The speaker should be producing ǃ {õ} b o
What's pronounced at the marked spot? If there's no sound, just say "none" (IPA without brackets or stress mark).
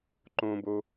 õ